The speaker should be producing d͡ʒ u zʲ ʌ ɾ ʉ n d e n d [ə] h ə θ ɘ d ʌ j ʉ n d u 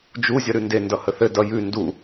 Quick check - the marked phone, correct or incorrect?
incorrect